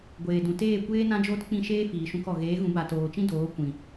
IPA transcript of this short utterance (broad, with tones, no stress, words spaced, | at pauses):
ɡʷeː˨dũ˨ teː˦˨kʷeː˦ nã˦d͡ʒoː˦tk͡pĩ˦˨ʃeː˦ fiː˨ʃũ˧kɔ˨ ɣeː˨˦ɣũ˨˦ba˨ toː˨t͡ʃĩ˦doː˨˦ kʷĩ˨